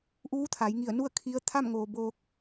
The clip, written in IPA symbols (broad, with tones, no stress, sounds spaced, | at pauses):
ʔ uː˧˥ t̪ʰ a˩˧ j ŋ i˧˩ ə̯ n u˥˨ ə̯ kʰ i˧˥ ə̯ t̪ʰ a˥˨ m ŋ oː˩ b oː˧ k̚